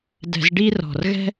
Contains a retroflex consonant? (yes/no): yes